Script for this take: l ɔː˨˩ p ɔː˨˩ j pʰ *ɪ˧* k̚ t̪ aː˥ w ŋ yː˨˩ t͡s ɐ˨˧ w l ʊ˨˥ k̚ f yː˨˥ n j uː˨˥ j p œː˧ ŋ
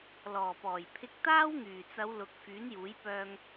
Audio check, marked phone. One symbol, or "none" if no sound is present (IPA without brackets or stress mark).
ɪ˧